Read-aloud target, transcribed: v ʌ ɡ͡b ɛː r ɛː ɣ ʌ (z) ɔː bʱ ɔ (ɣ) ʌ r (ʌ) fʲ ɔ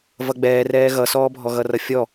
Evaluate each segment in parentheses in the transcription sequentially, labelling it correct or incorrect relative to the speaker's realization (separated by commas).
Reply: incorrect, correct, correct